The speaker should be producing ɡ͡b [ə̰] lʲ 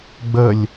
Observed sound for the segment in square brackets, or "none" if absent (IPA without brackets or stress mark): ə